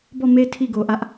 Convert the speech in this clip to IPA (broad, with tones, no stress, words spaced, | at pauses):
bɔ˦˨me˦ tʰi˦˨ɡo˨ʔä˦ʔ